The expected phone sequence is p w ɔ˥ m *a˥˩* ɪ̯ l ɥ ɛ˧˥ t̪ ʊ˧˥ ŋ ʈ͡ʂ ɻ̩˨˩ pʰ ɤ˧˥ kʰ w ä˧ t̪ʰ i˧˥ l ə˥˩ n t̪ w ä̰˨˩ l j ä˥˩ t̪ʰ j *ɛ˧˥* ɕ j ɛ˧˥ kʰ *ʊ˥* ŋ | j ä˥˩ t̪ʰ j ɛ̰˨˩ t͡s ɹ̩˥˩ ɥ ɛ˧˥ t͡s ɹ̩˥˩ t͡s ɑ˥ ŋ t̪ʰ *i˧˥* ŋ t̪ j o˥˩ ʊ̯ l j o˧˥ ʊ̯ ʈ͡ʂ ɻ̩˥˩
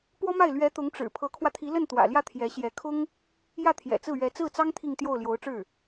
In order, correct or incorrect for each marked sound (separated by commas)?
correct, correct, correct, incorrect